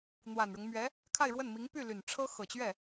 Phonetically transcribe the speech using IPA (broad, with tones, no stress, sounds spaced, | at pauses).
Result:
n̪ w a˨˩ n ɻ ʊ˦ ŋ m ɥ ɛ˧˥ | kʰ a˥˧ ɪ̯ ɻ w ə˥˩ n m i˧˥ ŋ p y˥˩ l y˨˩ n ʈ͡ʂʰ ɤ˥ x ɤ˨˩ t͡ɕ ɥ ɛ˥˩